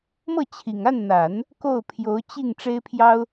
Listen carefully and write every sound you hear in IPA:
m ɤ˥˩ t͡ɕʰ i˨˩ ŋ a˥˩ n n̪ a˨˩˦ n | k o˥˩ ʊ̯ pʰ j o˧˥ ʊ̯ t͡ɕ i˥˩ ŋ ʈ͡ʂ e˥ ɪ̯ pʰ j ɑ˥ ʊ̯

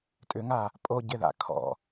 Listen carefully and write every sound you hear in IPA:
tʼ ʏ ŋ a | pʼ o ɟ ɪ ð a̰ kʰ ɔ̰

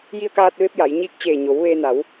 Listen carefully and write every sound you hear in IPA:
j i˧ ə̯ k aː˧ t̚ ʋ e˧ p̚ j a˩˧ j ɲ iː˧˥ k̚ t͡ɕ eː˧˩ ɲ o˩˧ w ʋ eː˧ n a˩˧ w

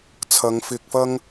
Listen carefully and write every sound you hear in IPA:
t͡sʰ ɐ˨˧ ŋ f ɪ˧ k̚ f ɐ˥ ŋ

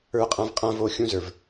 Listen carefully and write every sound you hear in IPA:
ə˞˦ qʼ ã˦ v qʼ ã˦ v o˦˨ xʲ ũ˦ z ə˞˨ v

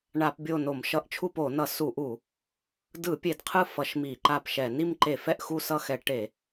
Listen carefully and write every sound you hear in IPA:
ɳ a˧˩˧ p bʲ o˦˨ n o˧˩˧ m ʃ ʌ˧˩˧ ʔ t͡ʃʰ u˦˨ p o˧˩˧ n ʌ˧˩˧ s u˧˩˧ ʔ u˧˩˧ | d ɯ˧˩˧ pʲ e˧˩˧ d qʰ ɯ˦˨ f ʌ˧˩˧ ʃ m i˧˩˧ ǃ a˦˨ p ʃ ɛ˧˩˧ n i˦˨ m ǃ e˧˩˧ f ɛ˦˨ ʔ x u˦˨ s ʌ˦˨ x ɛ˧˩˧ ʈ e˧˩˧

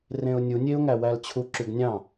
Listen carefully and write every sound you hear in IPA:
r ẽ ʊ̯ nʲ u nʲ e ʊ̯ ŋ æ w æ l t͡ɕʰ u ǁ y ɡ nʲ ɑ̃

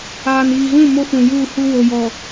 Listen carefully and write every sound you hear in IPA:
aː˨ n iː˨ ɣ ũ˦˨ m o˦ f ũ˨ j uː˦˨ h u˦ w o˨ j ɔ˨

